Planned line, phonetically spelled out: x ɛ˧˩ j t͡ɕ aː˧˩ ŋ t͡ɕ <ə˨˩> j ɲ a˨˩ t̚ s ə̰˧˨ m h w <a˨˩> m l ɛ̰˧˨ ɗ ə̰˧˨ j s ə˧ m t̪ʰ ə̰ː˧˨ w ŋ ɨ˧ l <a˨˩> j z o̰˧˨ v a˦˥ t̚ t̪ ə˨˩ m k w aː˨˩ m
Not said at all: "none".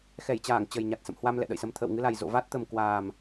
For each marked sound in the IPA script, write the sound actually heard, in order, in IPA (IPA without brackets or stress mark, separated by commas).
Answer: ə˨˩, a˧, a˨˩